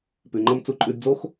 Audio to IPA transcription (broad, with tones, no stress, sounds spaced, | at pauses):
p ʉ˨ ŋ͡ǃ ʌ˧ m t͡s u˧ ǃʼ ʉ˧ d d͡z o˦ x